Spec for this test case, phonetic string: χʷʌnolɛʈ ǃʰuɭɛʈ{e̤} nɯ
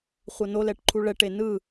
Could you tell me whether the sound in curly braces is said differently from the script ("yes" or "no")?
yes